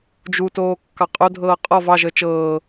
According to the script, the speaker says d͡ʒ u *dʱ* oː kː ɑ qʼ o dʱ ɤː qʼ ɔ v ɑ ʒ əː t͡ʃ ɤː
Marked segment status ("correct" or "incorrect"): incorrect